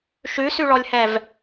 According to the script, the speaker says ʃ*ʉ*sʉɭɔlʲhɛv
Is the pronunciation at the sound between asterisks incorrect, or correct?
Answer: correct